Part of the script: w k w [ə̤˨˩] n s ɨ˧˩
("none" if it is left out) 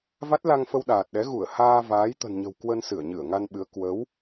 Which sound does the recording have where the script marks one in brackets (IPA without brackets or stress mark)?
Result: ə˧